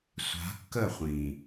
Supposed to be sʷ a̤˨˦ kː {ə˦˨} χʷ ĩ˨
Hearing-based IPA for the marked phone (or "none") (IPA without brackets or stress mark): ə˦˨